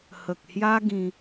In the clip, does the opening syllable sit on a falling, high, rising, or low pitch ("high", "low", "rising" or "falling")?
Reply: low